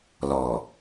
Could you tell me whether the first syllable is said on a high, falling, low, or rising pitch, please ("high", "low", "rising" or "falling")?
low